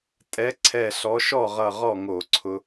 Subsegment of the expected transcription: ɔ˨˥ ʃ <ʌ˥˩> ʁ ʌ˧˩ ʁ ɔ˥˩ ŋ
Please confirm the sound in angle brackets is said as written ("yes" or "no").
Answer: no